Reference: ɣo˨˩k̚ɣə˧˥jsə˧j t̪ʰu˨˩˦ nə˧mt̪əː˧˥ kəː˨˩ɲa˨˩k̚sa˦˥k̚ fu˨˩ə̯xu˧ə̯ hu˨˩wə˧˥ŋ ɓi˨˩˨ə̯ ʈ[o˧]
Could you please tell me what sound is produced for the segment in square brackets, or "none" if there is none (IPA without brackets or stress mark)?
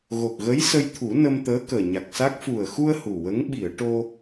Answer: o˧